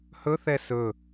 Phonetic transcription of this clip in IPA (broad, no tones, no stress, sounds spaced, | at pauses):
h ɵ θ ɛ s ɵ